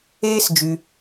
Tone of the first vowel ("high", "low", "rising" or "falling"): high